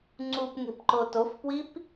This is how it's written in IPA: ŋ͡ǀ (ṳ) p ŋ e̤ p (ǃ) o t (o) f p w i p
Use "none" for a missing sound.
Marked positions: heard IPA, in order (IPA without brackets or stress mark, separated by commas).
u, ǃ, o